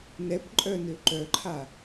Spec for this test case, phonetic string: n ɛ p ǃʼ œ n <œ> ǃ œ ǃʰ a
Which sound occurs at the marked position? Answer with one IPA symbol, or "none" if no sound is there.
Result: ø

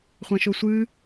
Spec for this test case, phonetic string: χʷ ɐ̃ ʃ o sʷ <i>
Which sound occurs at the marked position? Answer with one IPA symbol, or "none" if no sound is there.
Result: ɨ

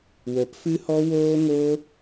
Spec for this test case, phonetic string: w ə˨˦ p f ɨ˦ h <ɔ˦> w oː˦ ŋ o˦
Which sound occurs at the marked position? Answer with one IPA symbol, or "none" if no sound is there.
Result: ɔ˦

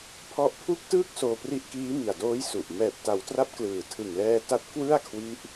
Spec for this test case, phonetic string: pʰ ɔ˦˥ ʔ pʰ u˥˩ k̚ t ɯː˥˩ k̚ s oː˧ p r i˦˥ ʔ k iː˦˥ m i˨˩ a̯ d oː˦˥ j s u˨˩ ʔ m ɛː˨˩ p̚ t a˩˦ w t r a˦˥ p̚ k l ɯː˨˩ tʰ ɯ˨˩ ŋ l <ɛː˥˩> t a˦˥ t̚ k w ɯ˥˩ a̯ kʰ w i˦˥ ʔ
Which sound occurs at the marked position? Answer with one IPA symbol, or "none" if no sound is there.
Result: ɛː˧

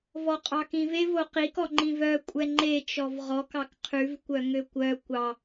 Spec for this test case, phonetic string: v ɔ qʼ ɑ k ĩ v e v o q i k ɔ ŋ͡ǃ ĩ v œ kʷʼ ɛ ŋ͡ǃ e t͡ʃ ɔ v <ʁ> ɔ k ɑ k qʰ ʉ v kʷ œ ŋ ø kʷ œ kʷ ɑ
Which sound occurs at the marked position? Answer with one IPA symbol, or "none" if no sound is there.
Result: ʁ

